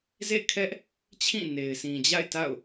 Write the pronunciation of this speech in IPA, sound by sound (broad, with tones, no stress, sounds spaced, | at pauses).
z ḛ˦˨ kʰ ɛ˦ ʔ | t͡ɕʰ ĩ˦˨ n e˨ ɪ̯ s ĩ˨ d͡ʑ a̰˦˨ ɪ̯ t a̰˦˨ ʊ̯